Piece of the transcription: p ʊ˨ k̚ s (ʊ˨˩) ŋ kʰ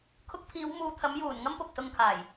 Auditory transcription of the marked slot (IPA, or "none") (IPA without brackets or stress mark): ʊ˧